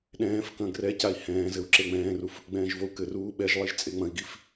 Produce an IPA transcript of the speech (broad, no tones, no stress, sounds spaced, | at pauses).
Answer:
ɗ ɛ̃ː f k ɐ̃ ɡ r ɛ c a i̯ h ɛ̃ː z ɘ u̯ ǁ e ŋ͡m ɛ̃ː r u f | ɡ͡b ɛ̃ː ʒ v o u̯ k ɘ r uː ɓ ɛ ʒ lˠ i ʒ t͡sʼ e ŋ͡m ɐ̃ i̯ ɡ i f